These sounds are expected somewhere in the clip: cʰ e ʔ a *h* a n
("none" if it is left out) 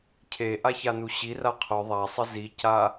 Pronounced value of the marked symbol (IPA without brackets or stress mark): ç